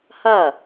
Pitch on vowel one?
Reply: falling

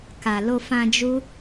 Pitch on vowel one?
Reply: low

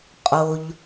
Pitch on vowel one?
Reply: low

